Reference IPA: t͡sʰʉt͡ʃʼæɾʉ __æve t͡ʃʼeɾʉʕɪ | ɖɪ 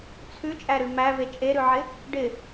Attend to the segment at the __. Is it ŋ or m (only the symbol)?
m